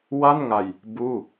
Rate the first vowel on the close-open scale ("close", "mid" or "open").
open